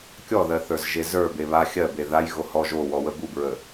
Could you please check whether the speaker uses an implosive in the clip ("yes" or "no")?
no